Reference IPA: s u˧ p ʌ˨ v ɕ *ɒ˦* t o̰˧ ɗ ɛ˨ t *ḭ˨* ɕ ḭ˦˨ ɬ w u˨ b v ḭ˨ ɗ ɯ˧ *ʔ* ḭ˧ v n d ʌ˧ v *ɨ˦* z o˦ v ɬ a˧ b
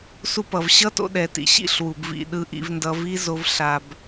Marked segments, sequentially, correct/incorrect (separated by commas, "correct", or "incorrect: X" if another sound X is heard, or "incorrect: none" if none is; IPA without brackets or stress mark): incorrect: ʌ˦, correct, correct, incorrect: i˦